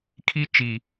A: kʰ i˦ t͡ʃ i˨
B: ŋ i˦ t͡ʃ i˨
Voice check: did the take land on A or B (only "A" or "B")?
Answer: A